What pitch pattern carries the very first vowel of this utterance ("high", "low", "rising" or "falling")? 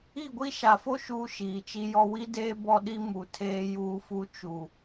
falling